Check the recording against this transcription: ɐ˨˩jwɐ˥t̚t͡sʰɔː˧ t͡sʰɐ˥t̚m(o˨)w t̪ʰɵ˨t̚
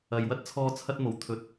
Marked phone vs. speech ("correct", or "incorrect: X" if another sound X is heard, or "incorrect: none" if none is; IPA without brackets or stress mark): incorrect: o˨˩